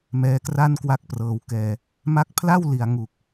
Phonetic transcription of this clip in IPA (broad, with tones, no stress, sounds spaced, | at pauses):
m ɛː˦˥ k r a˥˩ n k w a˥˩ k̚ p r ɤː˧ w k ɛː˧ | m a˦˥ k̚ pʰ l a˥˩ w l i˨˩ a̯ ŋ u˨˩ k̚